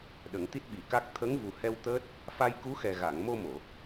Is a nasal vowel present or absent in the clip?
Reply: absent